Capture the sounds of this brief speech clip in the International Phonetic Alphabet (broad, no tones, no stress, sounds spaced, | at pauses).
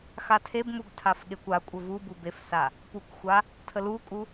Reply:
x a tʰ e b m u ɡ tʰ a f ɠ e kʷ a kʷʼ ə v u b u b e f s a | p u k xʷ a | tʰ ə l u kʼ u